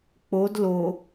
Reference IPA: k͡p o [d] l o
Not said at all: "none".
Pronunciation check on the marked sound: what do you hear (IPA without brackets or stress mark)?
d